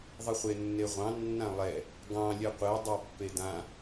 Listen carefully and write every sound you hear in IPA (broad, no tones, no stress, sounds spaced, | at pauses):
ðˤ i χʷ e nː e ʁʷ ɑ̃ nː ã lˠ ɛ | ɡ ɑ̃ lʲ ɛ qʷ e dˤ ɛ pː e d ã